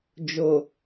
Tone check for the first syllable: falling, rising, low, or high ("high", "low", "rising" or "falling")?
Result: low